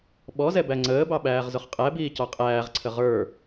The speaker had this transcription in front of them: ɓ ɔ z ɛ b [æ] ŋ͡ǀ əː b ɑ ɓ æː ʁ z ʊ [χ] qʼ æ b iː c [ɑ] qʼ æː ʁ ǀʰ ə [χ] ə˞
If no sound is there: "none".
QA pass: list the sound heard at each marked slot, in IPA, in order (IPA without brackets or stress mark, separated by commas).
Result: æ, χ, ɑ, ʁ